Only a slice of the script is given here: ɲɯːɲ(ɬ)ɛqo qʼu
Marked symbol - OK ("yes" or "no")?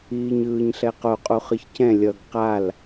yes